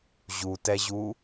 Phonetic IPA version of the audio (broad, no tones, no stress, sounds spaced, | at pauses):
ʑ u t ɛ ʑ u